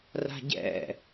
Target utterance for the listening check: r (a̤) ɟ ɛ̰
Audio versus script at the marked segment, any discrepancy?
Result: no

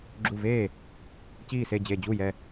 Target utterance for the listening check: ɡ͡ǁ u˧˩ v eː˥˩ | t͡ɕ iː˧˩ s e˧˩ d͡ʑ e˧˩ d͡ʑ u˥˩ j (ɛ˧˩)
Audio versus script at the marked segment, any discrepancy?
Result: no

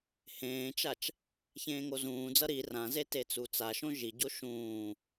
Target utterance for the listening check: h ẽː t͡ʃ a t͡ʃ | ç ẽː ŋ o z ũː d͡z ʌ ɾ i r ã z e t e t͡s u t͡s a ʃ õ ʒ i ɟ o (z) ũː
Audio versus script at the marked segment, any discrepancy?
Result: yes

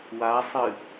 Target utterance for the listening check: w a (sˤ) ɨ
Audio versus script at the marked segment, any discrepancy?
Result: no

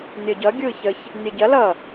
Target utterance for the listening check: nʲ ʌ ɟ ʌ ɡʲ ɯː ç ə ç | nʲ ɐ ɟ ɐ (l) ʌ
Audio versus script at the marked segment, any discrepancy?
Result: no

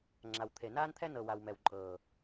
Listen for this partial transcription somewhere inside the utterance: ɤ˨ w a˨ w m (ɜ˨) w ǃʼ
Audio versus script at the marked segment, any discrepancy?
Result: yes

